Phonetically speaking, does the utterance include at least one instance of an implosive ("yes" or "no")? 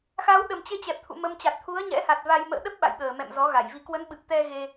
yes